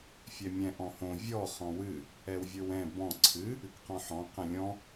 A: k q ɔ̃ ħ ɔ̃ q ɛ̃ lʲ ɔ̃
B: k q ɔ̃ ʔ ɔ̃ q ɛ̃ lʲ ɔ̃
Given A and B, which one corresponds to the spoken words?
A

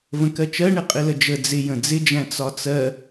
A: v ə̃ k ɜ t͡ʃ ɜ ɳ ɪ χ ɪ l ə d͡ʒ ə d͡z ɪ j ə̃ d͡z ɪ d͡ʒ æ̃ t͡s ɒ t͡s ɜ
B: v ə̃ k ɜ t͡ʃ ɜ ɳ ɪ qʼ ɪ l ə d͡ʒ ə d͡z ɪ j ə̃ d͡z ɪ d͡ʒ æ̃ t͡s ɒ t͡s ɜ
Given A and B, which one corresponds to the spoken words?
B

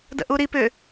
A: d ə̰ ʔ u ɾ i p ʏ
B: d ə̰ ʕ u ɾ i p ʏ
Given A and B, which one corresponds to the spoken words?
A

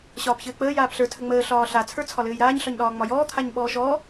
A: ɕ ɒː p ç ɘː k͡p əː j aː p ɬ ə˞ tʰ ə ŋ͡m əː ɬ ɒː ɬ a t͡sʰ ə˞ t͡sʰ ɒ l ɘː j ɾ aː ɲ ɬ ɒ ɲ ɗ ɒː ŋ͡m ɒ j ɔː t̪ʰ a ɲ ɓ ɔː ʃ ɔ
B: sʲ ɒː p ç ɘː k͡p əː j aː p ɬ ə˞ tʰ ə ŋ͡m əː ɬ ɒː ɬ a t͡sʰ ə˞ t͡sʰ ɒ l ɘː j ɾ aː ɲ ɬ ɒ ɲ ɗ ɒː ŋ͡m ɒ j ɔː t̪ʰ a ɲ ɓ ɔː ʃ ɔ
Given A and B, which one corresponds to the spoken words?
A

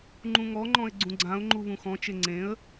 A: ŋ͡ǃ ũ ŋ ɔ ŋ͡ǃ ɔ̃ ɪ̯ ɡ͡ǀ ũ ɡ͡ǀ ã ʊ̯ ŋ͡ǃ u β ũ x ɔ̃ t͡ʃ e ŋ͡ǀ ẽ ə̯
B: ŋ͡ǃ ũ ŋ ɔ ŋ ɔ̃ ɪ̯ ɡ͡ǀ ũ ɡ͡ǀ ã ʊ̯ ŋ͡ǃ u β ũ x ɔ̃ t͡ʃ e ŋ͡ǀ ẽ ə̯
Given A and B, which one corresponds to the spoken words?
A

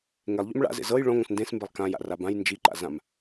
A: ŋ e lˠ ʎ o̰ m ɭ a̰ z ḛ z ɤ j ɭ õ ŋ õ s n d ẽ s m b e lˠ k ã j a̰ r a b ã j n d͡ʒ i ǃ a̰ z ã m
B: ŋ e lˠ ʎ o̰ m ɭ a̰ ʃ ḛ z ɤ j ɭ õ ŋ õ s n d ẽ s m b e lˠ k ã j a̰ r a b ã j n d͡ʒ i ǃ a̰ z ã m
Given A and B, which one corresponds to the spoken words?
A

